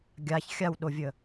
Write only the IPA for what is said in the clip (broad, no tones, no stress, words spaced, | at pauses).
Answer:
ɡʲaç xʲawɗovʲə